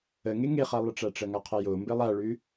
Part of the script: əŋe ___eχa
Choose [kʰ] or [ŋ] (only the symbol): ŋ